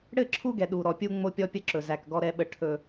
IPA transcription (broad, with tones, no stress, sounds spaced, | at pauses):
ɽ ɘ˦˨ ǁʰ u˦ ɡ ɛ˨ ɗ u˨ ɾ ɔ˨ pʲ u˦ ŋ͡m o˦ pʲ ɔ˦ pʲ ə˦ ǁ ɵ˨ z æ˨ k ɡ ɔ˦ ɾ ɛ˦ ɓ ə˦ ʈʰ ɵ˦